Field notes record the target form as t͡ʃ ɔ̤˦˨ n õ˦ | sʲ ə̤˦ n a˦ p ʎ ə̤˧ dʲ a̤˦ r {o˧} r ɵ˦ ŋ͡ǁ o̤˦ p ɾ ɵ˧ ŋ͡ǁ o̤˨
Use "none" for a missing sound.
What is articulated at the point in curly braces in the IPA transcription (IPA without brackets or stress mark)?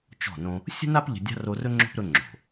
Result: o˧